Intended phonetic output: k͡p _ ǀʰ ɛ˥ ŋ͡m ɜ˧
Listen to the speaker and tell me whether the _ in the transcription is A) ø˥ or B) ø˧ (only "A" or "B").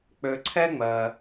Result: B